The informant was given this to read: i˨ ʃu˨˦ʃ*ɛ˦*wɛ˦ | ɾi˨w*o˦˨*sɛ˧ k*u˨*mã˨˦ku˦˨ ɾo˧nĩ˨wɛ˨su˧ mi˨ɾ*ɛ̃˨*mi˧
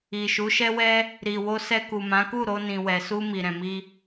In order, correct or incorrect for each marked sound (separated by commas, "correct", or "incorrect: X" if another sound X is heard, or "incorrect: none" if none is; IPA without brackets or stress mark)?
correct, incorrect: o˧, correct, correct